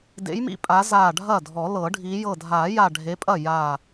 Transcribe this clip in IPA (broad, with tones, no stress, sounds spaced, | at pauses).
d ḛ˨˦ j m ḭ˨˦ pʼ a˨˦ z aː˧˩ ɖʱ ɐ˥˩ dʱ ɔ˨˩˦ l ɤ˨˩˦ ɖʱ iː˨˦ j ɤ˧˩ dʱ aː˨˩˦ j a˧˩ ɖʱ e˨˦ pʼ ɐ˥˩ j a˧˩